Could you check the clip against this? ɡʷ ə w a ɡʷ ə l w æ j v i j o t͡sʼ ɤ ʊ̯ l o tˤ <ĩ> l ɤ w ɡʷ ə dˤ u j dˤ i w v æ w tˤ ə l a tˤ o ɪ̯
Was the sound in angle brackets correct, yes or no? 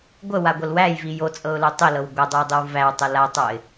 no